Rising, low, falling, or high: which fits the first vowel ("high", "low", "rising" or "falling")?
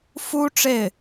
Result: high